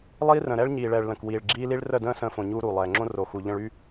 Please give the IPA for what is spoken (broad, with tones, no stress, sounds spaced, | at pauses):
lˠ iː˦ r ə̃˨ ɾ ɛ˦ ɭ ɲ iː˨ ɭ ɛː˨ ɭ l ə̃˨ k w iː˨ ɭ ɡ͡ǁ iː˦ l i˦ ɭ r ə˦˨ d ə̃ː˦ s ə̃ː˦ f õ˨ ɲ uː˦ ɾ uː˨ lˠ ɛː˨ ŋ͡ǁ õ˦ r o˨ x u˨ ʎ ə̃˦ ɭ y˦